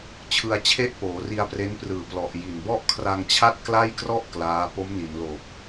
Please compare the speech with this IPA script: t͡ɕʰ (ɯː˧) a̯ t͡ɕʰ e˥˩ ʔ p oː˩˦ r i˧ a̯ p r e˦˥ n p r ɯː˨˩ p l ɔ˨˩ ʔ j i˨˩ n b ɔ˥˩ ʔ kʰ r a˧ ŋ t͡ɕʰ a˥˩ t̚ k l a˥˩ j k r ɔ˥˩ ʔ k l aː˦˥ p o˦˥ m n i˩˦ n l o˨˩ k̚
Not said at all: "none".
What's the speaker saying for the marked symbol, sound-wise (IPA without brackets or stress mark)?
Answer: ɯ˧